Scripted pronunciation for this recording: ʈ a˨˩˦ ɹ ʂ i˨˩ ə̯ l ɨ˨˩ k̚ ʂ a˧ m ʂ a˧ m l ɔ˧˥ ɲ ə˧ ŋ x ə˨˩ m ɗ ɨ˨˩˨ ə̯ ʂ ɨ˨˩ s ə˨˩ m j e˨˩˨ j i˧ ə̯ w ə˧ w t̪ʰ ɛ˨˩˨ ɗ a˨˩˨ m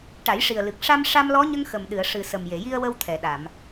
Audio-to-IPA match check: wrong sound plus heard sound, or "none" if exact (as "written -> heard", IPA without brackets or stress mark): ɹ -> j